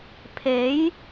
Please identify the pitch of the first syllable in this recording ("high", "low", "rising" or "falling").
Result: rising